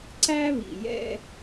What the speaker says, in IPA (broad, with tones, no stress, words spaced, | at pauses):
ǀæ˦βḭ˨jɛ̰˦